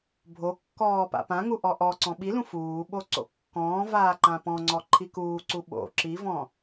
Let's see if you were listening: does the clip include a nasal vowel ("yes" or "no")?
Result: yes